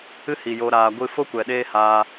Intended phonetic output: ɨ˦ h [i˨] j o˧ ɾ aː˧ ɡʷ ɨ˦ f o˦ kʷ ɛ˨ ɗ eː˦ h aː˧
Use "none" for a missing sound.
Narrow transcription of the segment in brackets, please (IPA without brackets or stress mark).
i˨